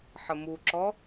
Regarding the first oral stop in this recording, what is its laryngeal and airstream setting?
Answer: click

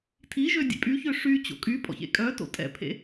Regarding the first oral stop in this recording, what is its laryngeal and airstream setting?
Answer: aspirated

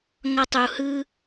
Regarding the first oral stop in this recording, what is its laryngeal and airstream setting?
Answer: plain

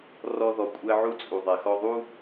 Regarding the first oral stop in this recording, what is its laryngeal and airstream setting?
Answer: ejective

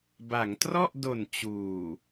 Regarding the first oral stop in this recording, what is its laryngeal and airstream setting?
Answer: plain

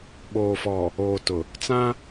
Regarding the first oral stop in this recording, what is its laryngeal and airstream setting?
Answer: implosive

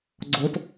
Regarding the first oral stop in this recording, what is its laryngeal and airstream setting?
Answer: click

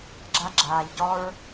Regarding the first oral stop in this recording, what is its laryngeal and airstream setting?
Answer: click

